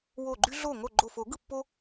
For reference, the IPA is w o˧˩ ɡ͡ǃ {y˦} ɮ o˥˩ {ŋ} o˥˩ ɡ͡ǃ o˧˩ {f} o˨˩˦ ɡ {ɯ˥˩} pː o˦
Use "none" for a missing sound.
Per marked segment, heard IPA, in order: y˦, ŋ, f, ɯ˥˩

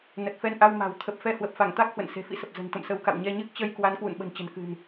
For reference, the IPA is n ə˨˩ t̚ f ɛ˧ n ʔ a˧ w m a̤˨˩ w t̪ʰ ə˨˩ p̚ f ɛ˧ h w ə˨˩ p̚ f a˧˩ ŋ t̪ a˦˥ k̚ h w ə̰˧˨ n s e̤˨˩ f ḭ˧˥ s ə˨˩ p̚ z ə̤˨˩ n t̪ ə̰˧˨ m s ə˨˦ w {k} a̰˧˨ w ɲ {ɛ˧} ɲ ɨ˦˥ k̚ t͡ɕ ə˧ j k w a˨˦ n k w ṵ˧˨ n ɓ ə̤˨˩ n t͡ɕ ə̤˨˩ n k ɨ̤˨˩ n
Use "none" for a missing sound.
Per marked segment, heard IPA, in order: k, ɛ˧

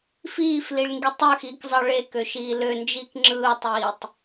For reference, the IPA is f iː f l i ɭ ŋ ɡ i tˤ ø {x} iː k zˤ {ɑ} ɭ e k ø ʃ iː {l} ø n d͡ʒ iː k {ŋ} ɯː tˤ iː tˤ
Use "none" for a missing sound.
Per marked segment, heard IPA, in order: x, ɑ, l, ŋ͡ǁ

